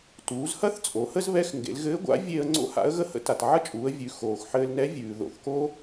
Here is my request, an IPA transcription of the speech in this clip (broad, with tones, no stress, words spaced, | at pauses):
tuː˩˧zhɐ˥θ t͡sʼo˩˧hə˥zβɛ˧˥x ŋɡḛ˩˧lɣɘː˧˥ɡʷa̰˧˥ vʲe˧ə̯ ŋ͡ǀo̰˥ha̰˧˥ə̯ɣə˥hə̰˥ ta˩tʕɐ˥t͡ʃʼuː˩˧ə̯ vʲʉ˩˧ xoː˩x ħɘː˧lnɛ˧˥ vʲʉː˩ ðo̰˩˧θko˥